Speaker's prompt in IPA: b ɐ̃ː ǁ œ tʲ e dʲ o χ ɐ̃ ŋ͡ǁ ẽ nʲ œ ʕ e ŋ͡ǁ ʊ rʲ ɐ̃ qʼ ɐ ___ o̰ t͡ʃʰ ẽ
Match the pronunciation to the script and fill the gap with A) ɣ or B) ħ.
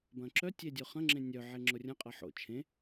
B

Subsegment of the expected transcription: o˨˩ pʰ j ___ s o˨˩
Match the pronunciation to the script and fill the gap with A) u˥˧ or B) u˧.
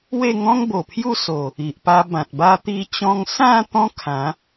A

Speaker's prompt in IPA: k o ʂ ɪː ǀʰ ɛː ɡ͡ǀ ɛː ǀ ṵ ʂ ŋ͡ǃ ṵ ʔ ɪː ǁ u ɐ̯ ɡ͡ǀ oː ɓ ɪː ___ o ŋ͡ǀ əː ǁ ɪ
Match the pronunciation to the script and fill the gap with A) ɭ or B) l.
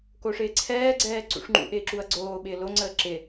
B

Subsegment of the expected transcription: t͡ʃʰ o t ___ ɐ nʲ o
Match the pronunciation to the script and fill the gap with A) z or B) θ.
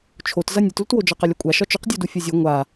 A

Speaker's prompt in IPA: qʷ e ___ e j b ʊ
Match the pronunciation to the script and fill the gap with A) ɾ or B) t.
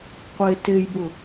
B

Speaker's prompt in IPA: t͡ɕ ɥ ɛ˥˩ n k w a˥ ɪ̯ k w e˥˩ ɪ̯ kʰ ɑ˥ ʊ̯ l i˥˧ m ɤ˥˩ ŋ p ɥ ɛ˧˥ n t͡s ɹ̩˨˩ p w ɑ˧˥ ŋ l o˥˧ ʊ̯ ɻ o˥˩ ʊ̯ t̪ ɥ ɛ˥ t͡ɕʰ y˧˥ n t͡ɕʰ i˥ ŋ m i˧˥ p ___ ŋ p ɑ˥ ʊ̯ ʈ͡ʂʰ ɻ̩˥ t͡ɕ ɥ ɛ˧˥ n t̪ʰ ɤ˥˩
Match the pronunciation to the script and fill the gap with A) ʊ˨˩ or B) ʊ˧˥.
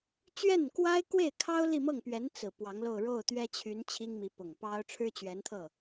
A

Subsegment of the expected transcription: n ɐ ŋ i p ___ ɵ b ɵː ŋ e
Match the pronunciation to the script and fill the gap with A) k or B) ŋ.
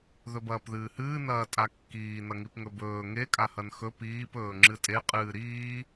B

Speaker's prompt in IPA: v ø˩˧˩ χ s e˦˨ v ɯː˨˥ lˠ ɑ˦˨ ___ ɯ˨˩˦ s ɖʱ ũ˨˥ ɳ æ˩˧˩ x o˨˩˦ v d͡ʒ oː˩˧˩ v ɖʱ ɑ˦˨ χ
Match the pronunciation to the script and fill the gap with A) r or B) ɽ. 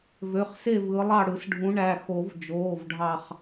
B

